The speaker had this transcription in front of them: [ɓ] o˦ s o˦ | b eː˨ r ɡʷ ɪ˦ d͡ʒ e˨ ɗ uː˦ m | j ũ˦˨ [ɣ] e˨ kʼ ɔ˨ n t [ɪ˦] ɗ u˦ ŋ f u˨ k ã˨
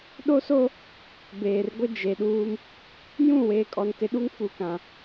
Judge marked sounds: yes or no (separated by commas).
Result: no, no, no